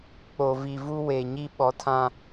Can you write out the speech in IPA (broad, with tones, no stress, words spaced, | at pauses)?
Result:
k͡po˨vi˨vu˦ we˨ɲi˦ ɓɔ˨˦tʰã˦